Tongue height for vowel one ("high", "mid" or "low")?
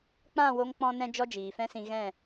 low